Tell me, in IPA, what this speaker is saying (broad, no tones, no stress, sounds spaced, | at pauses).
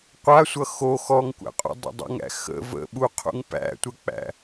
qʷ a sʷ ʌ x o x ɔ ŋ kʷ æ̰ qʼ ṵ dˤ ə̰ dˤ ṵ ŋ æ̰ x ə̰ v ə̰ ɓ u qʰ ṵ ŋ p æ̰ tʷ ə k͡p æ̰